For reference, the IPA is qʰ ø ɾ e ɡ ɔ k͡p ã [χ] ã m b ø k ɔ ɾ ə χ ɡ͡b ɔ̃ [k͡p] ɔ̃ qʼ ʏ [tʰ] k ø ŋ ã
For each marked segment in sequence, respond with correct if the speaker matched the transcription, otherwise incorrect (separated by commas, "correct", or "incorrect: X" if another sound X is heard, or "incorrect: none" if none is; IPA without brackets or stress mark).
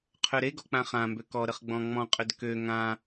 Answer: correct, incorrect: ŋ͡m, incorrect: d